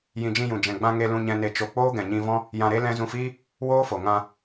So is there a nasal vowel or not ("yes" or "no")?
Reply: yes